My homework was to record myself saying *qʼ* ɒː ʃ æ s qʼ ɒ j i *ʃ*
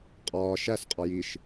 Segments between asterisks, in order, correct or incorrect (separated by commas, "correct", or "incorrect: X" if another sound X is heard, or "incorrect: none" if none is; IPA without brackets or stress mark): correct, correct